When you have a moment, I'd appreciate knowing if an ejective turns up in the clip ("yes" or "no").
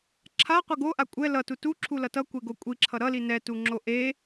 yes